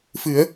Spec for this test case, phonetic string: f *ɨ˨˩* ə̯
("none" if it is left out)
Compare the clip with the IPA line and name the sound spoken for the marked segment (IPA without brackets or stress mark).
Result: ɨ˨˩˦